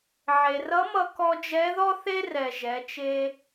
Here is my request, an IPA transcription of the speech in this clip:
ʕ e˩ r ʌ˧˥ m ʌ˧ k ɔ˧ d͡ʒ ɛ˧˥ ð ɔ˥ θ e˥ r ɛ˩ ʒ ɛ˩˧ t͡ʃ e˧

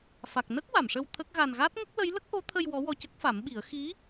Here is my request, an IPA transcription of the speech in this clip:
f a˨˩ k̚ n ə˦˥ k̚ w a˨˩˨ m ʂ ə˧ w t̪ʰ ə˦˥ k̚ ɣ a˧ n ɣ a˦˥ t̚ ŋ ə˦˥ k̚ l ə˧˥ j l ə˦˥ k̚ ʔ o˧˥ t̪ʰ ə˧ j w ɔ˧˥ w ɔ˧ c ə˦˥ k̚ f a˨˩˦ m ɓ i˨˩˦ ə̯ x i˧˥

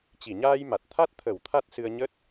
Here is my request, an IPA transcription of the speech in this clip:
t͡ɕ i˧˩ ɲ aː˧ j m a˨˩ t̚ t̪ʰ a˦˥ t̚ t̪ʰ ə˧˩ w t̪ʰ a˦˥ t̚ s ɨ˧ ə̯ ɲ ə˦˥ t̚

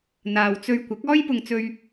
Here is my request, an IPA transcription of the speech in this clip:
n̪ aː˨ w t͡s ɵ˧ ɥ kʷ ɪ˨˥ k̚ ɔː˥ j p ʊ˧ ŋ t͡s ɵ˥ ɥ

